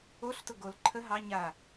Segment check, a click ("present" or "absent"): present